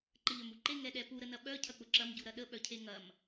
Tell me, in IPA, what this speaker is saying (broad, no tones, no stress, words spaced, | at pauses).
ǃəʎœmuǃe ŋɛɗɛpu ɾənɐɓœ cʰɐk͡pʊǁɐm ɟuɾɐɗə ɓœcʰeŋɐm